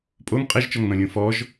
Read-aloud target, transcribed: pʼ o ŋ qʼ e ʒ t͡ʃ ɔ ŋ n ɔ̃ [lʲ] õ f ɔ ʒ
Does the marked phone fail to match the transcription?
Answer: no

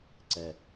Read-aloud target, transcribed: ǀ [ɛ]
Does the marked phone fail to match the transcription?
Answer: no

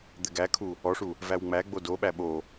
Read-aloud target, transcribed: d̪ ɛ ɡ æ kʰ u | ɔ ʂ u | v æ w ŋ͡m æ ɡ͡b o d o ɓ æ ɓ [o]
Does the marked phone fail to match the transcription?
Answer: no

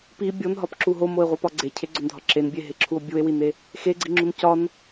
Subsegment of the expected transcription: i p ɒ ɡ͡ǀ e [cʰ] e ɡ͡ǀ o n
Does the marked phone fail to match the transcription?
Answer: no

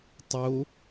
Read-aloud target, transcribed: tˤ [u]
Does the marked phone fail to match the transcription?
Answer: yes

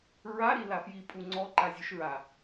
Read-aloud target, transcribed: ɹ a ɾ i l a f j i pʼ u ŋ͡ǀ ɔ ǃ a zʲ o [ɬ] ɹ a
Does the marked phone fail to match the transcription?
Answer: yes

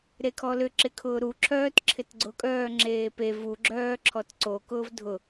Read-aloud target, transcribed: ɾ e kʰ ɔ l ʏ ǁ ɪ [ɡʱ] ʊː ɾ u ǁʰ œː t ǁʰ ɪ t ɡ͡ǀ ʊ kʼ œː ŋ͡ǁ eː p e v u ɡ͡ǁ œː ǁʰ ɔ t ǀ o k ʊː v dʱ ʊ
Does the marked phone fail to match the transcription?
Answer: yes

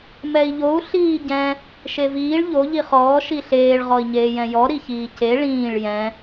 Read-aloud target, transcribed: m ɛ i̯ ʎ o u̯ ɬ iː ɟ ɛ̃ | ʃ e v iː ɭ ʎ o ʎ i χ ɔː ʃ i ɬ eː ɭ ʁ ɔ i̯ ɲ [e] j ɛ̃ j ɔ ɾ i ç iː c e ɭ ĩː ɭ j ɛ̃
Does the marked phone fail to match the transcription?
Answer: yes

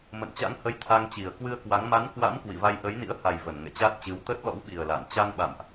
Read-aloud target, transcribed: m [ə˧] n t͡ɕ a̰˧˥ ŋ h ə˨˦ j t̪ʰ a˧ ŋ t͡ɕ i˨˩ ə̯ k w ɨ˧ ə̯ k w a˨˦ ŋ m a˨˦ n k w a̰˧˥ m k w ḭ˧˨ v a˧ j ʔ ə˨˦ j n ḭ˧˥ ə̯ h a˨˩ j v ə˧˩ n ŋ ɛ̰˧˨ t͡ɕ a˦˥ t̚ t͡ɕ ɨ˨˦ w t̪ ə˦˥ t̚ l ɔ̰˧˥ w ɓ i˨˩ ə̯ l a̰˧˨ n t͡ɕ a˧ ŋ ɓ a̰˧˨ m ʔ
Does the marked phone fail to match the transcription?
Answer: yes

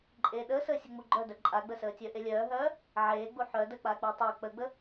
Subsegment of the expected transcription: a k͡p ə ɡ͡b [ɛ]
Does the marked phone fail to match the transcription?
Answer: yes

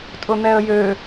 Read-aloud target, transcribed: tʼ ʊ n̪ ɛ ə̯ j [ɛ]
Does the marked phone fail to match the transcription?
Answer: yes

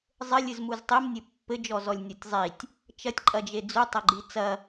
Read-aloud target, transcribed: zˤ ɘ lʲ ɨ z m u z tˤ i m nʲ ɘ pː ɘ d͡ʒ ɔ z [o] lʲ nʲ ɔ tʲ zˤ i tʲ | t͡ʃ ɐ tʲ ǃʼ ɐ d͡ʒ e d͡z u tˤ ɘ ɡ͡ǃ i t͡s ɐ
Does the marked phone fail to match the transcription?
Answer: yes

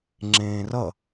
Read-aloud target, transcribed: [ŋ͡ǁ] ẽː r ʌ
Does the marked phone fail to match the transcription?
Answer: no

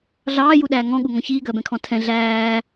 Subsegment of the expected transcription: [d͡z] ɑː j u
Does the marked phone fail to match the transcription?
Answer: yes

